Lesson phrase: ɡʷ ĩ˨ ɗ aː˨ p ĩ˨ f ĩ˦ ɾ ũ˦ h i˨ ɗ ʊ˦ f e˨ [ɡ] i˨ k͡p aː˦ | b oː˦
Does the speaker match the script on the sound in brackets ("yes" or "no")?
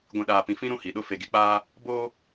yes